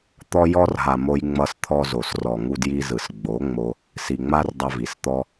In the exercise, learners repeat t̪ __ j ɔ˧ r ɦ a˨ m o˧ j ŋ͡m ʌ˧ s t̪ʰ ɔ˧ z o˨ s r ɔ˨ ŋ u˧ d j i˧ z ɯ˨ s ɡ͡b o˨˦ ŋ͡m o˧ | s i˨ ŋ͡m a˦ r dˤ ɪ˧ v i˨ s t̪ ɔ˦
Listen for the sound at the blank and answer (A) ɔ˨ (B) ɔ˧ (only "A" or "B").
B